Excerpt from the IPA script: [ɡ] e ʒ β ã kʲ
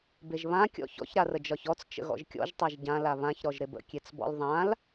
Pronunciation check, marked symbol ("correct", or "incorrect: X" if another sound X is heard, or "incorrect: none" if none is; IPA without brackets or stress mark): incorrect: b